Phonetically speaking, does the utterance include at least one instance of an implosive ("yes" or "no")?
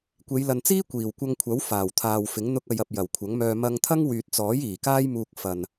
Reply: no